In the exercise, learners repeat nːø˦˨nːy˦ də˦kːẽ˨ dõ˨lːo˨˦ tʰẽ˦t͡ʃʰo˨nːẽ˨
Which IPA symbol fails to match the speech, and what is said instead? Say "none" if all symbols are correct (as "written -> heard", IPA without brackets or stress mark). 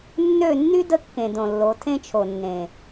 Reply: none